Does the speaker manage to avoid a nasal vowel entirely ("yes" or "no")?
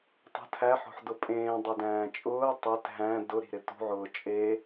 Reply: no